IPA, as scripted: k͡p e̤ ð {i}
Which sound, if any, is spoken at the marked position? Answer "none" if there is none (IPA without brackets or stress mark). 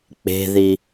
i